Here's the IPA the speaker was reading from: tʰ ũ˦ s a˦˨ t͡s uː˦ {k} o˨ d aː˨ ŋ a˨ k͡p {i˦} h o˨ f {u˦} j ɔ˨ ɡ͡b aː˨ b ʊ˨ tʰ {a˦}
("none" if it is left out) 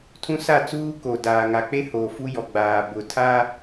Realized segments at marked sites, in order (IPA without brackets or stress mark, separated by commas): k, e˦, u˦, a˦